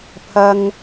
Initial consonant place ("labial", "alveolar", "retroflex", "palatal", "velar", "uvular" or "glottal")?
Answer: labial